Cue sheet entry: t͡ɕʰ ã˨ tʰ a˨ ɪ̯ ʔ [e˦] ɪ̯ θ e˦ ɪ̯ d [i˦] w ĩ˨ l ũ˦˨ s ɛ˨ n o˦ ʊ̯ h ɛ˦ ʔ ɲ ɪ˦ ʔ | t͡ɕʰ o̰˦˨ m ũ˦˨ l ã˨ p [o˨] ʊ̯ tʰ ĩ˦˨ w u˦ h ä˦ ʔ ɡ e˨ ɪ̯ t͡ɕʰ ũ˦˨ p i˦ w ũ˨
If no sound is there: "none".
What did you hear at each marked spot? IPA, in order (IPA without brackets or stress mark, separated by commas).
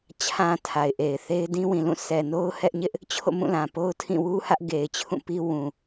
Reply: e˨, ĩ˦, o˦